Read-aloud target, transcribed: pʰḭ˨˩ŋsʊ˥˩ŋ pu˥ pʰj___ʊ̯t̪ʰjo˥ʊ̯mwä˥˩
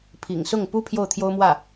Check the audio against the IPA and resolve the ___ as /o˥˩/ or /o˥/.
o˥˩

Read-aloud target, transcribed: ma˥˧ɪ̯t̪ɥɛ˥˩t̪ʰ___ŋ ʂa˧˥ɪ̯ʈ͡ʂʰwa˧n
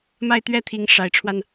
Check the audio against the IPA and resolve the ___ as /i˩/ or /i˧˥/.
i˧˥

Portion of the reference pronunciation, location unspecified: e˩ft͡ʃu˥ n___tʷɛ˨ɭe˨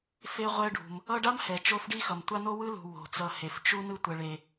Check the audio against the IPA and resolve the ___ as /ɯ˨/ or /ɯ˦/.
ɯ˦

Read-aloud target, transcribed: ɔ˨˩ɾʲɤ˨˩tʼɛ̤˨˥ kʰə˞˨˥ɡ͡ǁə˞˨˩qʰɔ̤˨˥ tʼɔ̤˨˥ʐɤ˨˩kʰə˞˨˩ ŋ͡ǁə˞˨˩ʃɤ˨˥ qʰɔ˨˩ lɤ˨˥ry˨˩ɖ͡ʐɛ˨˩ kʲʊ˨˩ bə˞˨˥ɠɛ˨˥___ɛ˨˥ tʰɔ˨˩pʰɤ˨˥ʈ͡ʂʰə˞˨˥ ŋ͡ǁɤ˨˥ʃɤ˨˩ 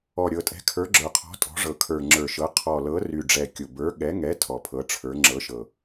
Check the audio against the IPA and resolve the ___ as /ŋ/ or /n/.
ŋ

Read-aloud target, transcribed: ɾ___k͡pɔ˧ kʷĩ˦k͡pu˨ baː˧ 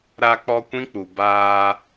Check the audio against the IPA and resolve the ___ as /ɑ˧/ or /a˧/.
a˧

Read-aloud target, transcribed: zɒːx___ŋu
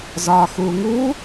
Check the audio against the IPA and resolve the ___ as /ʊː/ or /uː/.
uː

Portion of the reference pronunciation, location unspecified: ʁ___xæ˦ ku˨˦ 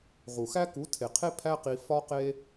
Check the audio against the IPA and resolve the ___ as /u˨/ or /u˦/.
u˨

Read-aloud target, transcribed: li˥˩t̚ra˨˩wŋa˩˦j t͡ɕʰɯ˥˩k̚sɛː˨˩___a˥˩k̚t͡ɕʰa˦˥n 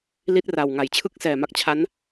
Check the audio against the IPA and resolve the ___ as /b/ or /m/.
m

